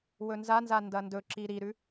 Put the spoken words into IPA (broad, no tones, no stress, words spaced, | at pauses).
wɵnzanza ndɐndɵǁi ɾiɾʉ